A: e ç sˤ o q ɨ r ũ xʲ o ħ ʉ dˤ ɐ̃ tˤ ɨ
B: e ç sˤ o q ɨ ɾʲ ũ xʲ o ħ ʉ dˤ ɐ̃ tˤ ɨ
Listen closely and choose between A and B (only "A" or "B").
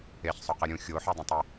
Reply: B